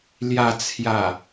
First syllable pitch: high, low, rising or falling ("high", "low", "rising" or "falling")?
low